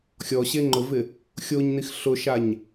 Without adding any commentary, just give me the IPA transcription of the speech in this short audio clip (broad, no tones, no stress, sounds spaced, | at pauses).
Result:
xʲ ɔ ɕ e ŋ͡ǃ ʊ v ɪ | xʲ o ɲ n i x ɬ ʊ ʃ a ɲ